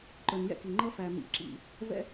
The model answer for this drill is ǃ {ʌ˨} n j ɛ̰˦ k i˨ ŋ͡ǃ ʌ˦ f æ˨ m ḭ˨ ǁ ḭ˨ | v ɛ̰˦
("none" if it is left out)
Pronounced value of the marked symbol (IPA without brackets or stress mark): ə˞˨